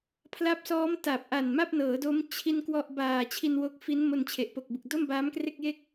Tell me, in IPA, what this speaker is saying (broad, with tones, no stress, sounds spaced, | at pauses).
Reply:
pʰ l a˦˥ p̚ s ɔː˦˥ m t a˨˩ p̚ ʔ a˨˩ n m a˥˩ p̚ n ɤː˩˦ d o˦˥ m t͡ɕʰ i˥˩ n k w ɔ˥˩ ʔ b aː˨˩ t͡ɕʰ i˧ n w o˦˥ k̚ f i˦˥ n m o˧ n t͡ɕʰ e˨˩ ʔ p o˨˩ k̚ b ɯ˨˩ k̚ d o˥˩ m b aː˦˥ m k r e˥˩ k̚ j e˥˩ k̚